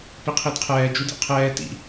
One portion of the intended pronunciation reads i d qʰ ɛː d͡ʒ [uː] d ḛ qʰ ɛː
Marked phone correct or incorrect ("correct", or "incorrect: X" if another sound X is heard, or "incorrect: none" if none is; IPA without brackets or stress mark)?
incorrect: u